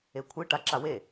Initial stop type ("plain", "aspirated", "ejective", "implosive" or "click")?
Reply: aspirated